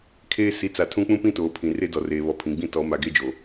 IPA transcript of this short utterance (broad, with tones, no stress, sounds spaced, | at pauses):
kʰ eː˦ s i˨˦ t͡s a˨ tʰ ũ˦ k͡p ũ˦ p ĩ˦ t oː˨ pʰ ĩ˨ r e˦ d ɔ˨ r eː˨ β ɔ˨ pʰ ĩ˨ ɡ͡b ĩ˦ t ɔ˨˦ m a˨ ɡ e˦ d͡ʒ oː˨